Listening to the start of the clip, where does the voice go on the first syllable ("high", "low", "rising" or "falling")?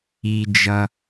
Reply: low